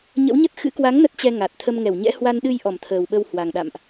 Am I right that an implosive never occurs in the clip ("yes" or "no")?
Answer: no